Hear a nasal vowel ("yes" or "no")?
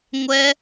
no